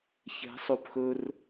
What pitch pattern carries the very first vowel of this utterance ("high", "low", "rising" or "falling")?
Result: rising